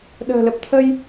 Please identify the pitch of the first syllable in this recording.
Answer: low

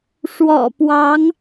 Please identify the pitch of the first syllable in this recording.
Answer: low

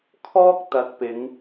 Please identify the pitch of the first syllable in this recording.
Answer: high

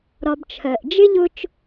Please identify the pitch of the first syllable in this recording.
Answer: low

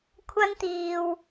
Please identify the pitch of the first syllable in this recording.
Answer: high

